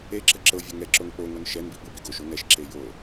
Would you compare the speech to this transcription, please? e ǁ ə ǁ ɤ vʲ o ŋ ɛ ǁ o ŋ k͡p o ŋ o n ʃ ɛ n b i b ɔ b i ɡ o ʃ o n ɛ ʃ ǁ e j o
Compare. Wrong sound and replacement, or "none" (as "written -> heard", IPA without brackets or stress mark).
ɔ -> ɤ